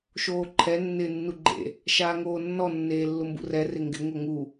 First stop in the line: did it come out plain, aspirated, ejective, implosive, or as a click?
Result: click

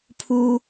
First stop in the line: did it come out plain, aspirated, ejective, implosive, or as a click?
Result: aspirated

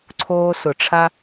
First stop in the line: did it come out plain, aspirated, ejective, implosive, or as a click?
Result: click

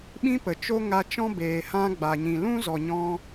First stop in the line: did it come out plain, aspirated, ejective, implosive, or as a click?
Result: implosive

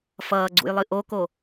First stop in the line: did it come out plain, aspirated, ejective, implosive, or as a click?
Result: click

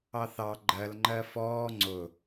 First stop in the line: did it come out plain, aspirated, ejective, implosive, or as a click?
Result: click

